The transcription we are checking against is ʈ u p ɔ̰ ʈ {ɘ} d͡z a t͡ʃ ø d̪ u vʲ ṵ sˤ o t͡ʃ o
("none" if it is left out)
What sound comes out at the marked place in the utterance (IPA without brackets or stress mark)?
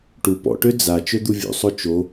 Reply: ø